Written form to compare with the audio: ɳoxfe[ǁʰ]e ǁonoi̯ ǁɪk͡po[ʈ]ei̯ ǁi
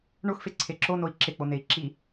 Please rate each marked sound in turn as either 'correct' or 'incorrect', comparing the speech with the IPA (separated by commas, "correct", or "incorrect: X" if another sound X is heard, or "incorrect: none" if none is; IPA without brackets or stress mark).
incorrect: ǀʰ, incorrect: n